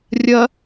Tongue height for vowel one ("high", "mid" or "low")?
low